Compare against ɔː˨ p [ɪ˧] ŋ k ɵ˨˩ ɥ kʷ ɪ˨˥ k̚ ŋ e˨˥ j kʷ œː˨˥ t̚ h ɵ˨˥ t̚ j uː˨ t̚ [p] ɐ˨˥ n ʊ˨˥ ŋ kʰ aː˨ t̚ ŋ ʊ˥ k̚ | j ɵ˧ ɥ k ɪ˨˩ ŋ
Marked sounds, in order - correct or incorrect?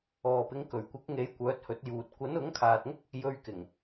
incorrect, incorrect

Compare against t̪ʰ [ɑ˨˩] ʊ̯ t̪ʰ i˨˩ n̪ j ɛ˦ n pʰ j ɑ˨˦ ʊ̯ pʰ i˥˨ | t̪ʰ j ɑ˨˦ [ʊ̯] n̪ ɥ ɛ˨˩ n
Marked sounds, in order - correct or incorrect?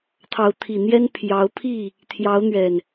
incorrect, correct

